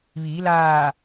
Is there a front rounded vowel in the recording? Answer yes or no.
no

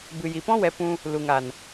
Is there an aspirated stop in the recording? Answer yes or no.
no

